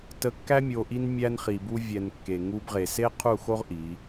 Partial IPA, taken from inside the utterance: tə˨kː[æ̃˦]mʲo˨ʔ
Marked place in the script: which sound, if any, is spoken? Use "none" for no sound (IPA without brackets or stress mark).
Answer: æ˦